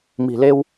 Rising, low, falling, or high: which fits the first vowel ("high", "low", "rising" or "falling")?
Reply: low